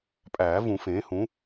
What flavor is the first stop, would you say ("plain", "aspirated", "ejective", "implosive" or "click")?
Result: ejective